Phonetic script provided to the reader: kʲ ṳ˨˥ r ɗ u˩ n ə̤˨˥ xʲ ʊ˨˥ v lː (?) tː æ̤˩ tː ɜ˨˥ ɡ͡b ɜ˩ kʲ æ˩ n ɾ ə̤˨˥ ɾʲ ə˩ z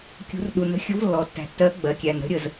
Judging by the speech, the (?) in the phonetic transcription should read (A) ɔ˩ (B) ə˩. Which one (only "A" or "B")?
A